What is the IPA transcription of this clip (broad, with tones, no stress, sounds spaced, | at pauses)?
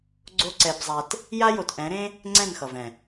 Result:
ɡ͡ǀ o˦ ǀ ɛ˧ b zˤ a˧ t | j a˦ j o˨ t ʔ ɛ̃˨˦ ɾ ẽ˦ | ŋ͡ǀ ɛ̃˦˨ n x ʌ˨ v ɛ̃˨